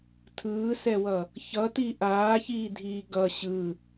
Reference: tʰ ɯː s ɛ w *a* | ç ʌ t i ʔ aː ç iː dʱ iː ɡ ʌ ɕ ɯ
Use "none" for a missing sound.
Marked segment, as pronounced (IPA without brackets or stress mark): ʌ